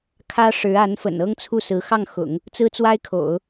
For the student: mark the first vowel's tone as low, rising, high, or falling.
high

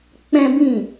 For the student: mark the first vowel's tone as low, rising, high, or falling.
high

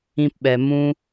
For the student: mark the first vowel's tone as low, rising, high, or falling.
high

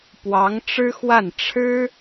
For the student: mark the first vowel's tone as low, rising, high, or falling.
rising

